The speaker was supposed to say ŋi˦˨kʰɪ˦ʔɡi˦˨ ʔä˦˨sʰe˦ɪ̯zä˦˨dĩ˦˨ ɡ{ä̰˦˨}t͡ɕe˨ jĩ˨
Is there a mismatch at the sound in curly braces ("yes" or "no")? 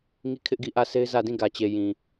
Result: yes